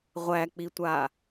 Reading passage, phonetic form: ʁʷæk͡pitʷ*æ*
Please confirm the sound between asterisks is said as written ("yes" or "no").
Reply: no